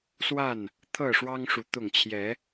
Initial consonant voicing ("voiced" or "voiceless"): voiceless